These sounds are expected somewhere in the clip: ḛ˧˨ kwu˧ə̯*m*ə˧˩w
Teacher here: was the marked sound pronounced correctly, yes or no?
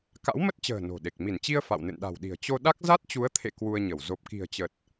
no